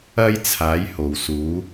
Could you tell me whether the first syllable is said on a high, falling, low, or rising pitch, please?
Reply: high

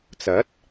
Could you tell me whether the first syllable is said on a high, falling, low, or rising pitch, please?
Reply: rising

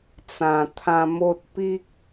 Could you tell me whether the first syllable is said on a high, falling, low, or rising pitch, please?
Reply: low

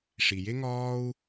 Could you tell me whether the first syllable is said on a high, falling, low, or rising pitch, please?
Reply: low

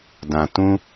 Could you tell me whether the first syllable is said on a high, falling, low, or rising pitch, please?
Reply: low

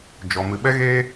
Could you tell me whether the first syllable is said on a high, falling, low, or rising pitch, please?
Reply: low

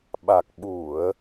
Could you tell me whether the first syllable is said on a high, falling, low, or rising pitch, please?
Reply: low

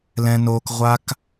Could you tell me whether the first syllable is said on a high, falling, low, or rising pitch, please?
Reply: high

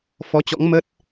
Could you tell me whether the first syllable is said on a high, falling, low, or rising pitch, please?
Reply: rising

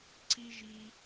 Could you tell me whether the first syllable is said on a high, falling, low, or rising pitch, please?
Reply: high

